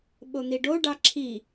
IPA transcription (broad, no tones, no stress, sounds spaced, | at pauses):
ɓ o n̪ i ɖ o ɖ ɑ ǁʰ i